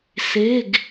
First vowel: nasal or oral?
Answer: oral